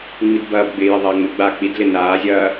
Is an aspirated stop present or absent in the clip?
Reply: absent